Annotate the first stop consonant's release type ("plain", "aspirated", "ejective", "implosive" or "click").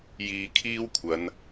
aspirated